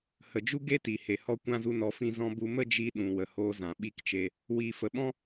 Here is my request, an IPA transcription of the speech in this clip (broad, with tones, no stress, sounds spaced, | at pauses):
h ə˨ d͡ʒ u˦ ɡ e˦ t i˨ h e˨ h ɔ˧ kʷ ã˧ z u˧ n ɔ˨˦ f ĩ˧ z ɔ̃˧ b u˧ m ə˦ d͡ʒ i˦ ɗ ũ˨ w ə˨ h oː˧ z ã˨ ɓ i˦˨ k t͡ʃ e˧ | w iː˨ f ə˨ ɓ ɔ̃˦